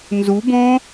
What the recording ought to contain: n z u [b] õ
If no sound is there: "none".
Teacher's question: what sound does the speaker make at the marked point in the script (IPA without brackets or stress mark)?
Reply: b